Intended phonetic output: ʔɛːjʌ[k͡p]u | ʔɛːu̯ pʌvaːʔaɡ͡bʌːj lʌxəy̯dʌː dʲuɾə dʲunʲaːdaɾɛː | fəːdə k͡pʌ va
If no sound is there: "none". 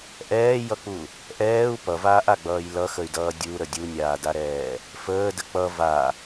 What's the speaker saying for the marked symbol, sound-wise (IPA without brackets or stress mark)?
k͡p